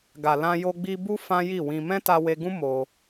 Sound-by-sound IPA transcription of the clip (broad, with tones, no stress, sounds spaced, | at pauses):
ɡ a˨ l ã˧ j o˧ ɡ͡b i˧ b u˦ f ã˦ j i˦˨ w ĩ˧ m ɛ̃˦ t a˧ w e˧ ɡ ũ˦ m o˧